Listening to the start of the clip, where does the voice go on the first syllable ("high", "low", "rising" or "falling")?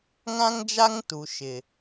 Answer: high